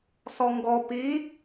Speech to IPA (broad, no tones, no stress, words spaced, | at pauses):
sɔŋɡɔ pi